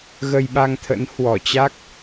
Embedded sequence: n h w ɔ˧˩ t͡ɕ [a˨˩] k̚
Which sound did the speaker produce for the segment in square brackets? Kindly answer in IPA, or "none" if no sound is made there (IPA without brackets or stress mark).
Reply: a˦˥